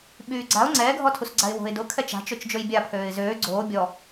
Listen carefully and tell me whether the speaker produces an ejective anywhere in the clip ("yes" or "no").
no